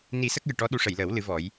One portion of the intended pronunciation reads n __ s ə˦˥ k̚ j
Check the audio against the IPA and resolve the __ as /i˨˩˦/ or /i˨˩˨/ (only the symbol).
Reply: i˨˩˦